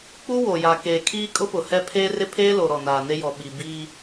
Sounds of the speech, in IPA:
k͡p u˦ w o˨ j a˨ k eː˨ kʰ iː˦ kʼ ʊ˦ p ʊ˨ h ɛ˦ pʰ eː˦ r ɪ˦ pʰ eː˦ l o˨ ɾ ɔ˨ n aː˨ n e˦ j ɔ˨ ɓ i˨ b iː˦

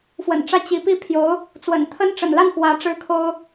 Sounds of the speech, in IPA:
f w ə̰˨˩ n ʈ͡ʂ ä˥˩ t͡ɕ i˧˥ p i˥˩ pʰ j o˧˥ ʊ̯ | t͡s w ə̰˨˩ n t̪ʰ ə˥ n ʈ͡ʂ ə̰˨˩ n l a˥˩ n x w ä˧˥ ʈ͡ʂ ɻ̩˥ kʰ o˥ ʊ̯

